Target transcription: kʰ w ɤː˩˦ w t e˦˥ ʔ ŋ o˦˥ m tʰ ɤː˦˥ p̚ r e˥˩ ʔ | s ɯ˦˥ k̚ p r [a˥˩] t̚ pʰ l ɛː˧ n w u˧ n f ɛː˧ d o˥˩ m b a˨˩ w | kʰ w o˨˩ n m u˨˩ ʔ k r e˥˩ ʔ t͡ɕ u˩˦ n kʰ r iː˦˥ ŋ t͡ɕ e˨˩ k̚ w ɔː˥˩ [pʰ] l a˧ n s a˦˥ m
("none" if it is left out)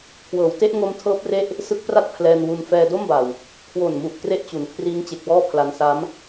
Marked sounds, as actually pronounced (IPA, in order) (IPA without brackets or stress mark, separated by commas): a˥˩, pʰ